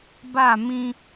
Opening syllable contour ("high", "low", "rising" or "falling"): falling